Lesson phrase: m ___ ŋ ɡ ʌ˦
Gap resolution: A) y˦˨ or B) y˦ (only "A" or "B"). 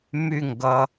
A